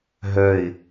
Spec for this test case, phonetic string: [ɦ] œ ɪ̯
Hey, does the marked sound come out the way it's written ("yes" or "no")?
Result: yes